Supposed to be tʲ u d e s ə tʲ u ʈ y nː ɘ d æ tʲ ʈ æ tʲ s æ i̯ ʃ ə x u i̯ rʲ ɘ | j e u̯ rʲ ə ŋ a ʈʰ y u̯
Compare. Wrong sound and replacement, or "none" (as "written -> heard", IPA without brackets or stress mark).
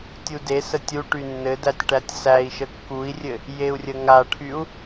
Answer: x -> kː